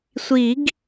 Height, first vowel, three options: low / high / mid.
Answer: high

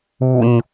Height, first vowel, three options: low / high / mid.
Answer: high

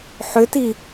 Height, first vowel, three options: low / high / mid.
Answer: high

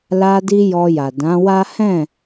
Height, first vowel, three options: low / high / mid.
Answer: low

